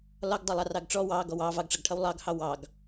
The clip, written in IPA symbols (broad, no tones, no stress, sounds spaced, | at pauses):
l ɒ ɡ dˤ ʌ lˠ ɑ r ɑ ɡ ʈ͡ʂ ɔ w ɑ ɡ ɔ w ɑ v ɑ ɡ ʈ͡ʂ ʌ ɡ ʈʰ ʌ w lˠ ɑ ɡ h ɑ w ɑ ɡ